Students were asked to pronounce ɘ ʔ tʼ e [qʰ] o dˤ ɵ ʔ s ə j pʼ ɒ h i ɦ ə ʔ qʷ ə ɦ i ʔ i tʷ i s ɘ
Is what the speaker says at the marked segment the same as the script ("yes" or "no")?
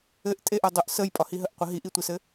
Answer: no